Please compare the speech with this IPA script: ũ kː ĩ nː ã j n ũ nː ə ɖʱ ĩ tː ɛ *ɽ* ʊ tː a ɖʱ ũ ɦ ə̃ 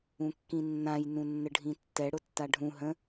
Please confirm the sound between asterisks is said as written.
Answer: yes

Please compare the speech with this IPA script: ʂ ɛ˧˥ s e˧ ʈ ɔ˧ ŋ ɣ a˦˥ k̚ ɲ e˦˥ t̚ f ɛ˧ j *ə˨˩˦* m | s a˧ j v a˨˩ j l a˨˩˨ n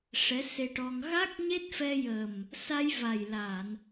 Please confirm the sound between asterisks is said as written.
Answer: no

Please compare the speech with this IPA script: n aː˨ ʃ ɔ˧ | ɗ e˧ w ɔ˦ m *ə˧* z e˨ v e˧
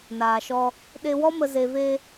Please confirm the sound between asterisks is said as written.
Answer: yes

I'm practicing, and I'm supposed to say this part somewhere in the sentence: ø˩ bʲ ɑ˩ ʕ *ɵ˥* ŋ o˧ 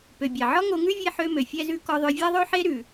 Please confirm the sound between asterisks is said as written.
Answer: no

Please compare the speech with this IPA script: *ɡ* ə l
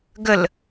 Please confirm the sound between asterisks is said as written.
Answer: yes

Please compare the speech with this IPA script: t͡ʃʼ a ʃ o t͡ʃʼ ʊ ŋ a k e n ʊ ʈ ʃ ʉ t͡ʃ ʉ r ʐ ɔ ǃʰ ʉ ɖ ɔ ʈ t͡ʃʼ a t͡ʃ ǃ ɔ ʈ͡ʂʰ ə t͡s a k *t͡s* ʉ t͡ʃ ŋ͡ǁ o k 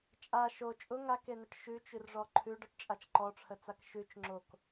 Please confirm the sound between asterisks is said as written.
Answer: no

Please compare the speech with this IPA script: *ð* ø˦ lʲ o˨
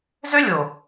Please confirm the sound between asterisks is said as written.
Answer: no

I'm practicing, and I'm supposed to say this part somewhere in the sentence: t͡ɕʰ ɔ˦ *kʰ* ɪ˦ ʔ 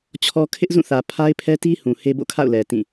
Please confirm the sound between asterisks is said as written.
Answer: yes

